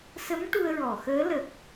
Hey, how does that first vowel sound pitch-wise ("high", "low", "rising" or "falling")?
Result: rising